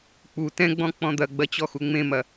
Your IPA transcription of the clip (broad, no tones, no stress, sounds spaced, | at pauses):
k͡p u t ɛ̃ ɡ͡b ɔ̃ k͡p ɔ̃ d̪ ɐ ɡ͡b ɐ t͡ɕ ɔ x u ŋ͡m ẽ m ɐ